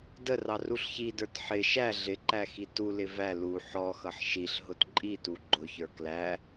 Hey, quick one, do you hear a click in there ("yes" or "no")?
yes